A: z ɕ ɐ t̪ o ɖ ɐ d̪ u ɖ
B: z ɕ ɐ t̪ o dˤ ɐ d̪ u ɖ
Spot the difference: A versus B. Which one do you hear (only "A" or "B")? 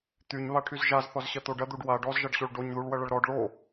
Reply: A